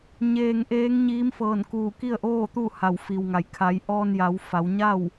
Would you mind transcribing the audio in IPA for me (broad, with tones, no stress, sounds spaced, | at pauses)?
ɲ eː˧ ŋ ʔ eː˧˥ ŋ ɲ iː˧˥ m f ɤː˧˩ n k uː˧˩ k i˥˨ ə̯ ʔ oː˥˨ t̪ u˥˨ h a˧˩ w f i˩ w ŋ a˩ j kʰ a˩˧ j ʔ ɔː˧ n j a˩˧ w f a˩˧ w ɲ a˥˨ w